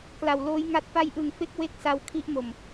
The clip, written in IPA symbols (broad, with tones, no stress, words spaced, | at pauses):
kla˨˩wloː˦˥jŋa˦˥t̚ pa˦˥jʔɯ˨˩ŋfe˦˥k̚ we˦˥k̚sa˧w kʰi˦˥ʔmo˨˩m